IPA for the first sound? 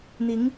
n̪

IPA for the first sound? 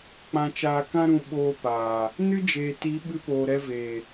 k͡p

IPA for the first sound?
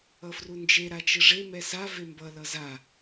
ʌ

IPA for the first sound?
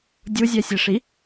dʲ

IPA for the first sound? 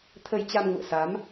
t̪ʰ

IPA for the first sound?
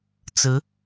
t͡s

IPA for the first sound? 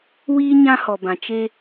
w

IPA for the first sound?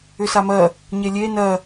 ʏ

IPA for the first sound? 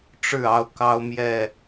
ʈ͡ʂ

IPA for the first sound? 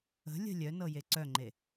ə̤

